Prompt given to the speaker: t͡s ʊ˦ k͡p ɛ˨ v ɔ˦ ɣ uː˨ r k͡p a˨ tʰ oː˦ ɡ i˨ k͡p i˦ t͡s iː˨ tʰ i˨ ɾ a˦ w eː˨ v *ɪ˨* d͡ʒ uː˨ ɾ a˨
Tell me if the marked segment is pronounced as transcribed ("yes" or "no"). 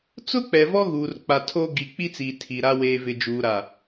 yes